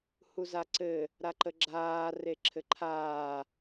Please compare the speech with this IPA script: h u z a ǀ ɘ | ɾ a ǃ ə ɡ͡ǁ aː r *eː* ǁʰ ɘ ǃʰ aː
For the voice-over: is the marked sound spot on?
no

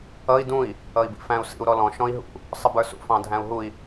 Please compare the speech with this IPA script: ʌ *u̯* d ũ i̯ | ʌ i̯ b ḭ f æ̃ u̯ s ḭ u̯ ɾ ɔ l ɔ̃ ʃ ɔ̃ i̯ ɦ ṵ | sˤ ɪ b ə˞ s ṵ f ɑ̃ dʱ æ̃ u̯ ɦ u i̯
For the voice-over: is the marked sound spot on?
no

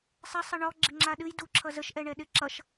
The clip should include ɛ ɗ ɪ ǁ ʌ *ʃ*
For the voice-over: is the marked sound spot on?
yes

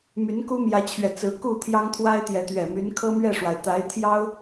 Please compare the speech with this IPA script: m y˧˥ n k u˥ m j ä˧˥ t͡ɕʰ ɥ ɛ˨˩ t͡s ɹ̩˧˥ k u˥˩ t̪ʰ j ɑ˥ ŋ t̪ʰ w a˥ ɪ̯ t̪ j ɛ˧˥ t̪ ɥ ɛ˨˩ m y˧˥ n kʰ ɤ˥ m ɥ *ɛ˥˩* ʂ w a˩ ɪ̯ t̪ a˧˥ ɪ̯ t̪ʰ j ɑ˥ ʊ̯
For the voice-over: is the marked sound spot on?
yes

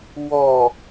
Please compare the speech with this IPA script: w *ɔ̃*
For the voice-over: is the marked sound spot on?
no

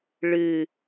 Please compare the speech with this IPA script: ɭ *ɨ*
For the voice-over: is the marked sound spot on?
yes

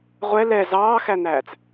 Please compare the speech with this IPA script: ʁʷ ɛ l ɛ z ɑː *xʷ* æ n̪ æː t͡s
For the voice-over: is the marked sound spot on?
no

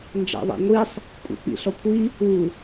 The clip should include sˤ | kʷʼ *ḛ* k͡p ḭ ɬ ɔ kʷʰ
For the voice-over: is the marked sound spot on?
yes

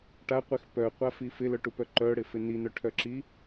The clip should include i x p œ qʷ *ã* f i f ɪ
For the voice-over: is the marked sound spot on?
no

